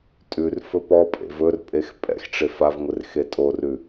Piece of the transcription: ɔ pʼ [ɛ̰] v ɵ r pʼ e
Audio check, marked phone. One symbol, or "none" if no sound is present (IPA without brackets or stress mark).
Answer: ḛ